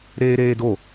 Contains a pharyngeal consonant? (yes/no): no